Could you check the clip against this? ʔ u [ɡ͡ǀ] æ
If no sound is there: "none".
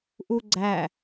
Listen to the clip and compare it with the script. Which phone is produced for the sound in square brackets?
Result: ɡ͡ǀ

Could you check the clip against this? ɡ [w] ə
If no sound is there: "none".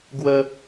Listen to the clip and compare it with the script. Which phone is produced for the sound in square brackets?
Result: w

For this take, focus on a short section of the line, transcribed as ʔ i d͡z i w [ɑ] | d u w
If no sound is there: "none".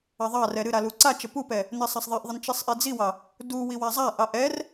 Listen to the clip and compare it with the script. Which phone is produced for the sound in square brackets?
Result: ɑ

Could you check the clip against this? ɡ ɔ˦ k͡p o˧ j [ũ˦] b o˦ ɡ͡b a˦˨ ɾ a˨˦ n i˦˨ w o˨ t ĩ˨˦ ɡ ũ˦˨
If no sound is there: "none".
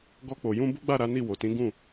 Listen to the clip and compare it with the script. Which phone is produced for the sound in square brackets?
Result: ũ˦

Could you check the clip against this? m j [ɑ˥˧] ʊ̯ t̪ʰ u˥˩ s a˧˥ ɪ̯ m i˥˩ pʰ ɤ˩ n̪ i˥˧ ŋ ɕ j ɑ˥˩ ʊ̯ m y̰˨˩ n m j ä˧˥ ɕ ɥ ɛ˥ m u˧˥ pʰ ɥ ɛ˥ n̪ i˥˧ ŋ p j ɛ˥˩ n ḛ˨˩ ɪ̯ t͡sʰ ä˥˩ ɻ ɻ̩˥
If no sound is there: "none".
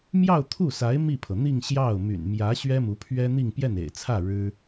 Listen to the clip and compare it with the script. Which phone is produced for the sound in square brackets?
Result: ɑ˥˧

